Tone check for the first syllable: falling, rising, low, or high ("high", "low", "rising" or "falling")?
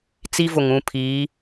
high